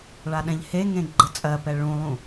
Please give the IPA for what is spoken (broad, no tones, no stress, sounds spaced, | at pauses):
ɭ a ɗ ɛ̃ ʎ h e ŋ ẽ ɡ͡ǃ ə t͡sʼ ɜ p ɛ ɭ ũ lˠ ũ